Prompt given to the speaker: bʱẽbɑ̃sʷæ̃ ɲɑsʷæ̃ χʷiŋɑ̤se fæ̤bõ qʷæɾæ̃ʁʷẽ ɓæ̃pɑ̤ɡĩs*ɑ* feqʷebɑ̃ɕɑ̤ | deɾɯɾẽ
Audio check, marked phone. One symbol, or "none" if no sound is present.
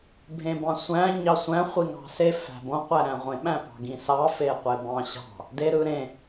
ɑ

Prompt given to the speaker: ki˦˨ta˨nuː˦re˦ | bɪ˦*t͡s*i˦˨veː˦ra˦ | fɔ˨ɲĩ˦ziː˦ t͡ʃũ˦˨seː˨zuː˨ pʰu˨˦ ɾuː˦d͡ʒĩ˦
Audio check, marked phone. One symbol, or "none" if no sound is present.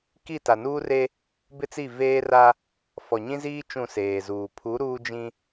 t͡s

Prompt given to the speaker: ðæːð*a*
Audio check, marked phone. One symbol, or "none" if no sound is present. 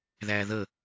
ə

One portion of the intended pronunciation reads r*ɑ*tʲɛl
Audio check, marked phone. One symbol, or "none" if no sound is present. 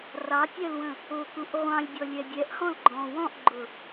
ɑ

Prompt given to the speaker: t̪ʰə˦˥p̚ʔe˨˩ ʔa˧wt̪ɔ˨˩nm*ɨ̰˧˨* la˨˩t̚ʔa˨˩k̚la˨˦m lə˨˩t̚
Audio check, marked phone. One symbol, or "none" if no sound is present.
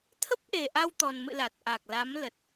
ɨ̰˧˨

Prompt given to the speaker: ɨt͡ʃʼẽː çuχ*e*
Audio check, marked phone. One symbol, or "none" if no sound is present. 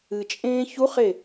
e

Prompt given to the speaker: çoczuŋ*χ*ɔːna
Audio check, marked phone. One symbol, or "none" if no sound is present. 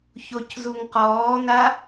q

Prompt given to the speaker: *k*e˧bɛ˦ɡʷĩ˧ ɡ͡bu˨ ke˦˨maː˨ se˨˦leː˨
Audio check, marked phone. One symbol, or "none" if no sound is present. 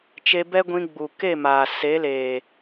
t͡ʃ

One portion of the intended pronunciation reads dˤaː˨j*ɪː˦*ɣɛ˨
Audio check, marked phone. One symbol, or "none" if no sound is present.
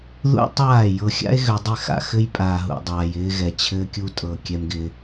ɪː˦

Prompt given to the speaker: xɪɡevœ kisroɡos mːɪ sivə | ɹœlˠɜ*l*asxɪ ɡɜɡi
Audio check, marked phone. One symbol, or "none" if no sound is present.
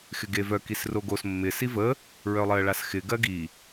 ɭ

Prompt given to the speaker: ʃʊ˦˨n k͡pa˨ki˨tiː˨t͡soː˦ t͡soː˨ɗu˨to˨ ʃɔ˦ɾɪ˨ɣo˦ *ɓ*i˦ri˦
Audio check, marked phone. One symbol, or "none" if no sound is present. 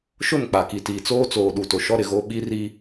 ɓ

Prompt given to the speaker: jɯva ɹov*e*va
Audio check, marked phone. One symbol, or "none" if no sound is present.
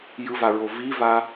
i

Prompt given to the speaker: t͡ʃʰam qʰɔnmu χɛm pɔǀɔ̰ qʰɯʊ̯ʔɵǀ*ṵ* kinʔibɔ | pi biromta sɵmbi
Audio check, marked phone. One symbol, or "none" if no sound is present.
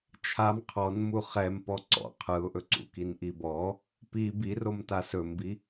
ṵ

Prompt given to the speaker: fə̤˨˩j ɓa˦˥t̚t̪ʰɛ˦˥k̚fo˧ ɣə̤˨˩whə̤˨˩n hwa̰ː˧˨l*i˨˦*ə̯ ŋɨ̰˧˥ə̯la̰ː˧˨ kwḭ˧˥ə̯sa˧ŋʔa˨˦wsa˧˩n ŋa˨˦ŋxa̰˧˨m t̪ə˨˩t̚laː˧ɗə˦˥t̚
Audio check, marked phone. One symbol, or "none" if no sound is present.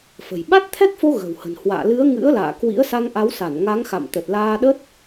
ɨ˨˦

